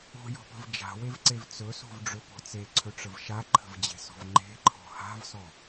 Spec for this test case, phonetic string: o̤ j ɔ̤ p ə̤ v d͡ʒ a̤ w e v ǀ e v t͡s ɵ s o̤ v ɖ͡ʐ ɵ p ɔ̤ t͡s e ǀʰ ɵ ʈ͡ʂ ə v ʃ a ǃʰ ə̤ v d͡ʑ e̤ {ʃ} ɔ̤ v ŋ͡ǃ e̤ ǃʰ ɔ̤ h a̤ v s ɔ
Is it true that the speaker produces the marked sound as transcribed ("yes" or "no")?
no